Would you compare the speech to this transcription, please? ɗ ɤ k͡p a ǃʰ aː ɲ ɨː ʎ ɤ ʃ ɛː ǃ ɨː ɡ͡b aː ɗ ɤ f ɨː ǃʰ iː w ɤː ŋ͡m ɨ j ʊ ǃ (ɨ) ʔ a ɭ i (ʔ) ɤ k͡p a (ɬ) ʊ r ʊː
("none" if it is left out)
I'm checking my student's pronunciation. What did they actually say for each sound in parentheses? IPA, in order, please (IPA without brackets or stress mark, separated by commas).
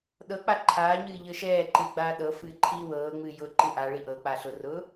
ɨ, ʔ, ɬ